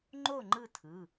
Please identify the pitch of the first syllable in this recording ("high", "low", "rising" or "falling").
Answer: falling